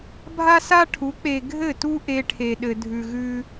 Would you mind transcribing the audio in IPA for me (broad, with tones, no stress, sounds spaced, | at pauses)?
bʱ a˦ s a˦ ʈʰ u˨˦ k͡p e˨ ɡʱ ɘ˦˨ t u˦ ʔ e˦ ʈʰ e˨ ɗ ɘ˨ dʱ ʉ˨ ɣ ʉ˦